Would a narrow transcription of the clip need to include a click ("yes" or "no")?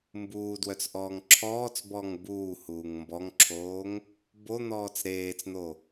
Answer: yes